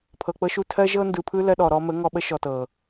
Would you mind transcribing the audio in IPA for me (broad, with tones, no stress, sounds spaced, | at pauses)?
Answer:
pʰ ɤ˨ k͡p ɤ˧ ʃ u˧ tʰ ɜ˦ ʒ ɤ˦ n d ɯ˨ pʰ ɯ˦ l ɜ˧ ɗ ɔ˨ ɾ ɔ˧ m ə˨˦ ŋ ɔ˧ ɓ ə˦ ʃ ɔ˨ t ɤ˨